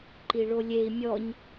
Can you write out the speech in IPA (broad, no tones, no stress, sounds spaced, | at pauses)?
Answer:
ǃ i ɭ o lʲ e i̯ mʲ ɔ ɲ